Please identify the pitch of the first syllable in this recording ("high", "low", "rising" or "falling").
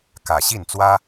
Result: low